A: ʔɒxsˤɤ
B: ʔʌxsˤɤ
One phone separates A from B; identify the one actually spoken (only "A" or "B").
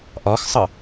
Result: A